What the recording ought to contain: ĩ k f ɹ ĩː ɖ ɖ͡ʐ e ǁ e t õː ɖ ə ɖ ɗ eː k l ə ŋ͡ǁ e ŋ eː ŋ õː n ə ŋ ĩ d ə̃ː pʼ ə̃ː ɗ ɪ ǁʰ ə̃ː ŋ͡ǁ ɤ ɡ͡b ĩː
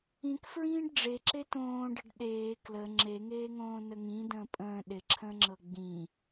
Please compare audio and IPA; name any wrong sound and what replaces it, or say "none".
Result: none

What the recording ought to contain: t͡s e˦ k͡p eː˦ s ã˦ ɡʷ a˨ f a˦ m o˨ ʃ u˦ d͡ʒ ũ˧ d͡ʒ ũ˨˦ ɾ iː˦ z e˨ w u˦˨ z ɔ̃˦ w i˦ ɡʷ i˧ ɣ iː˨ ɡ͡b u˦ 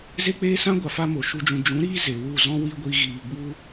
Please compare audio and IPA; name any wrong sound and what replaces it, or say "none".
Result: t͡s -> z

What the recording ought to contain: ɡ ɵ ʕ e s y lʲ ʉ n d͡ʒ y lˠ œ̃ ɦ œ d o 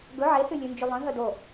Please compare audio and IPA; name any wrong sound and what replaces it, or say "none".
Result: none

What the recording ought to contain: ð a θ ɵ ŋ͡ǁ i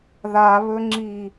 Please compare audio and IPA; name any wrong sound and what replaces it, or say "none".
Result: θ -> β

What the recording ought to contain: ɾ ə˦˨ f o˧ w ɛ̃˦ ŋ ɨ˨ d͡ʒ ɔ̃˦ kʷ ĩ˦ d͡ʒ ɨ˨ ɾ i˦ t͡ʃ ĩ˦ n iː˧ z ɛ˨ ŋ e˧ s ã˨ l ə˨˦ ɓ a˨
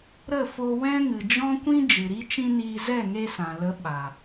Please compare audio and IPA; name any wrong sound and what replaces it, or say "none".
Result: ɛ˨ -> ɛ˦˨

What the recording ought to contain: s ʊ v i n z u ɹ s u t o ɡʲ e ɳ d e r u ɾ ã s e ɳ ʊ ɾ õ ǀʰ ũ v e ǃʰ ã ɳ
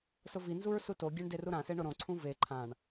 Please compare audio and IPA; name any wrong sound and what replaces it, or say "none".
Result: none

